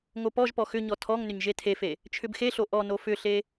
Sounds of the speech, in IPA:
ŋ o p ɔ ʒ p ɔ x ʏ ɲ ɔ tʰ ɔ ŋ n ʏ ɲ ʒ e tʰ e f e | t͡ʃʰ ʏ b x e ɬ o ʔ ɔ n o f ʏ ɬ e

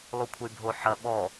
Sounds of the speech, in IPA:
lˠ u kʷʰ ə y̯ bʱ o ħ ɐ ɓ ɔ

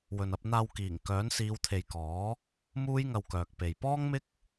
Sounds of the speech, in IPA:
w ɵ˨ n ɐ˧ p̚ n̪ aː˧ w k iː˨˩ ŋ k œː˨˥ n s iː˨˧ w t̪ʰ e˨ j k ɔː˨˥ | m uː˥ j ŋ ɐ˧ w k œː˨ k̚ p e˨ j p ɔː˥ ŋ m ɪ˥ k̚

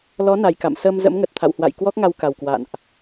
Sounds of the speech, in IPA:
l ɔ˨˦ n a˨˩ j k a̰˧˨ m s əː˧ m z ə̰˧˥ m ŋ ə˨˩ t̚ t̪ʰ a̰˧˨ w h w a̰˧˨ j k w ɔ˦˥ k̚ ŋ a˧ w k a˨˩ w k w a̰˧˨ n ʔ

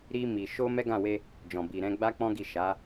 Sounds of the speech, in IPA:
ɾ i˧ m i˨ ʃ o˧ m ɛ˦ ɡ ã˦˨ w e˧ | d͡ʒ ɔ̃˨ b i˨ ɾ ɛ̃˧ ɡ͡b a˦ k͡p ɔ̃˦ ɡ i˦˨ ʃ a˨˦

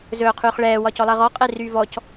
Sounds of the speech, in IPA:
z ɵː qʰ yː χ ɭ ɛː w ɒ c ɔ lˠ əː ʁ ɔ qʼ e r yː v ɔ c

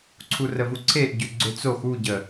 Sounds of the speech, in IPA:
ǀʰ u r ə v u ǀʰ e ʔ ɟ ø ɡ͡ǀ ø t͡s o x u ɟ ə

